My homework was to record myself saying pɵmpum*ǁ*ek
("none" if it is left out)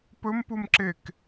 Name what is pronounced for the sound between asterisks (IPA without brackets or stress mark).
ǁ